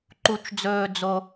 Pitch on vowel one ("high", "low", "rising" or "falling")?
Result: low